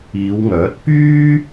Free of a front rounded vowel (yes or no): no